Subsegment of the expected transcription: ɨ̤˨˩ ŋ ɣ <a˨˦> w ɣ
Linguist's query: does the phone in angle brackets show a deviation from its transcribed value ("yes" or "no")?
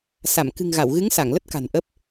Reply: yes